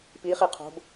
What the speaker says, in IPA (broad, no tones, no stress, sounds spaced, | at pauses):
p i χ i qʰ o̤ b